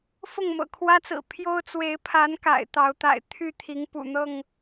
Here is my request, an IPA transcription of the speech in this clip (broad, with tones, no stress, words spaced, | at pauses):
fʊ˥˨ŋmɤ̰˨˩kʰwä˦t͡sɹ̩˨˩ pʰjo˦ʊ̯ t͡swe˨˦ɪ̯pʰa˨˦n ka̰˨˩ɪ̯t̪ɑ˨˦ʊ̯t̪a̰˨˩ɪ̯ t̪ʰy˥˨t̪ʰi˨˦ŋpṵ˨˩ n̪ɤ˥˨ŋ